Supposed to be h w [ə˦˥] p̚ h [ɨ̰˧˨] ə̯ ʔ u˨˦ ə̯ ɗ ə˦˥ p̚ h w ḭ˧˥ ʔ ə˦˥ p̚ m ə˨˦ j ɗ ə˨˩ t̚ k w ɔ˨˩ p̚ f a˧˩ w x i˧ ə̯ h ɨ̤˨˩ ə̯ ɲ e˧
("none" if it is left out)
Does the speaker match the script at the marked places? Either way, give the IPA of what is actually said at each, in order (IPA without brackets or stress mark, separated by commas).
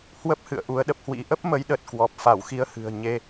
ə˦˥, ɨ̰˧˨